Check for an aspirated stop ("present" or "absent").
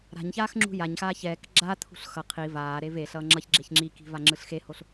present